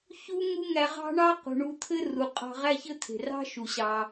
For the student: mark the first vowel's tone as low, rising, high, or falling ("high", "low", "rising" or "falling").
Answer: high